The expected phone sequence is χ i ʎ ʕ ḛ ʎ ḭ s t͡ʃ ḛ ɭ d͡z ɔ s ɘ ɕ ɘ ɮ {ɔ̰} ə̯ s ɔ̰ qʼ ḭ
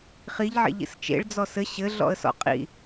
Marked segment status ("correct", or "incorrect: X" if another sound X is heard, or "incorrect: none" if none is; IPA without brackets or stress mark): correct